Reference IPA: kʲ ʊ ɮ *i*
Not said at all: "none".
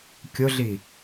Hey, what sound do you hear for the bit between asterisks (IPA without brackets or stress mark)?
i